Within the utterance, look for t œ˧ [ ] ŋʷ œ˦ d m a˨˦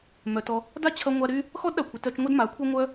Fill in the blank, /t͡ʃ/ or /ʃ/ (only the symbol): t͡ʃ